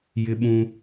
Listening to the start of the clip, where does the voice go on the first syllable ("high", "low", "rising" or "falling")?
high